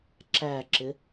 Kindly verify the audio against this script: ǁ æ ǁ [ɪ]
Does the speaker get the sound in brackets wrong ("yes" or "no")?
no